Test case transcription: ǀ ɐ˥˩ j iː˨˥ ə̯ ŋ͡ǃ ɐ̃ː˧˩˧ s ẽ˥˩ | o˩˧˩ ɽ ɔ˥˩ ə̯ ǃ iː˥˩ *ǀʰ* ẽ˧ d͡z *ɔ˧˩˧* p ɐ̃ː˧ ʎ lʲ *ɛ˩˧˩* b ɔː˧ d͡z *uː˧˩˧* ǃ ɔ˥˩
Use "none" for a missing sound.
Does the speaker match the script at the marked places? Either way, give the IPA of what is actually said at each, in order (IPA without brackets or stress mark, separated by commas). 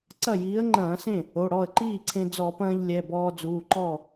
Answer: ǀʰ, ɔ˧˩˧, ɛ˩˧˩, uː˩˧˩